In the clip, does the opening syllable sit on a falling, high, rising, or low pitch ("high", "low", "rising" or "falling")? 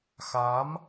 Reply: rising